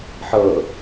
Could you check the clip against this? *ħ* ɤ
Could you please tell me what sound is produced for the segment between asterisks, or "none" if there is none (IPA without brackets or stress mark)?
ħ